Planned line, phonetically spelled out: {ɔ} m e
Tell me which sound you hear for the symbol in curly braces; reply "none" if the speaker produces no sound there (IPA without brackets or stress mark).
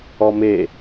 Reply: ɔ